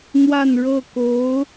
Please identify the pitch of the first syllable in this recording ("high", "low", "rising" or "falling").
falling